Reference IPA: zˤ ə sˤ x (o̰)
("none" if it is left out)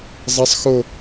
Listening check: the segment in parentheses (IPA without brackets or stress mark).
o